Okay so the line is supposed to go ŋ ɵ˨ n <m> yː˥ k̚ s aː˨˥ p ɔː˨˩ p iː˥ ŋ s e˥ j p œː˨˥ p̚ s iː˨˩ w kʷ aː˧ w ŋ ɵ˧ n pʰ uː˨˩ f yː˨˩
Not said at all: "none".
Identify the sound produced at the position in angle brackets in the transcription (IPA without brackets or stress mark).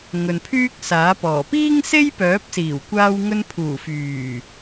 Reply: pʰ